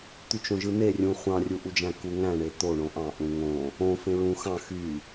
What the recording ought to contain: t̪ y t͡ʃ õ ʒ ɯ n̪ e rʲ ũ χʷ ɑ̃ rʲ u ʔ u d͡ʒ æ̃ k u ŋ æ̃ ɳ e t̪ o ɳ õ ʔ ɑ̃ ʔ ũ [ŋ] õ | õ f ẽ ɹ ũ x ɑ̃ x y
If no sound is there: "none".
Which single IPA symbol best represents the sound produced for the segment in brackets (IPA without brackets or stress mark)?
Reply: ŋ